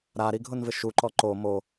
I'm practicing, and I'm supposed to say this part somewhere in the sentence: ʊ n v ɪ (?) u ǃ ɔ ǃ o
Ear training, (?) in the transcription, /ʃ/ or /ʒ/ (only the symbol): ʃ